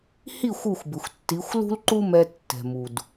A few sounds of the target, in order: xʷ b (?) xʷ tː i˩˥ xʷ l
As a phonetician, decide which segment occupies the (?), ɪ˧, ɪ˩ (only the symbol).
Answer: ɪ˩